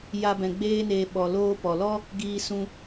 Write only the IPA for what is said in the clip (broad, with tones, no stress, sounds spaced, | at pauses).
j a˧ b ɛ̃˨ ɡ͡b eː˧ n eː˨ ɓ ɔ˨ l oː˦ p ɔ˨ l ɔ˦ | ɡ iː˧ s ũ˧